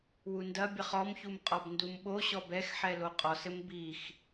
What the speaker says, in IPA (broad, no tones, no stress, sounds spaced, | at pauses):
w u n d ɐ bʲ ɘ χ ɔ m ç u m qʼ ɔ b n d u m ɓ o ɕ ɔ b ɛ x ħ ɛ l o qʼ ɔ s ɘ m b i x